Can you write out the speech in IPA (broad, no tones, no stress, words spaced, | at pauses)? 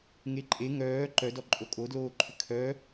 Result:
ŋeǃʼe ŋœː ǃœdɔǃʼo kʼodloːǃʰʏ kʰœ